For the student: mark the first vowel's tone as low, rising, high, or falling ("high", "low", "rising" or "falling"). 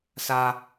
high